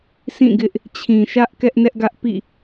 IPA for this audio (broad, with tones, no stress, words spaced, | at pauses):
sĩ˦˨ɡɪ˦ʔ | t͡ɕʰĩ˨ʃä˦ʔ kɛ˦ʔnɛ˦ʔɡä˦ʔpḭ˦˨